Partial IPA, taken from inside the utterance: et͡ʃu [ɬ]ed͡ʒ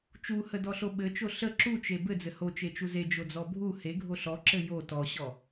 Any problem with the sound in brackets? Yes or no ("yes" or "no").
yes